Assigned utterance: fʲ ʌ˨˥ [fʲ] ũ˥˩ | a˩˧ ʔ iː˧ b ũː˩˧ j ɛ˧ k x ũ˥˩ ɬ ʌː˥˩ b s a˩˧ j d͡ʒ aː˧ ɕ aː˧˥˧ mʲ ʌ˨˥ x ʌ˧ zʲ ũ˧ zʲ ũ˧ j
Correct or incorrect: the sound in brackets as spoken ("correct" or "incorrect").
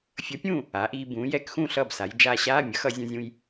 incorrect